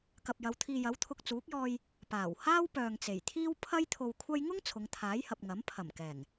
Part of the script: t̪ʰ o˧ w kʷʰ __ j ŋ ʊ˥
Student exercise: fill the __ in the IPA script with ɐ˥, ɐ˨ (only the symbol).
ɐ˥